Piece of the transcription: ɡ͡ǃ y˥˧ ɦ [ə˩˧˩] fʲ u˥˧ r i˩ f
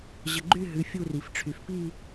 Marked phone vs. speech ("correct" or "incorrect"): incorrect